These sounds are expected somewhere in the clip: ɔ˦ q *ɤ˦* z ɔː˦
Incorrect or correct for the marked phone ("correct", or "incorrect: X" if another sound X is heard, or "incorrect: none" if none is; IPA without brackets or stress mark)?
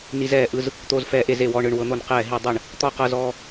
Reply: correct